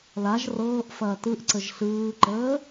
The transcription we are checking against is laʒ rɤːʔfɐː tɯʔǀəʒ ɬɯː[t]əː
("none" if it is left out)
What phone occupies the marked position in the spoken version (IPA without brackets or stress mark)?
ǃ